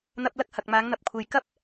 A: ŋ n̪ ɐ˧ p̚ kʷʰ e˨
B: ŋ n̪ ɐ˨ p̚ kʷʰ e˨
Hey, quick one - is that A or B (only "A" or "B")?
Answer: B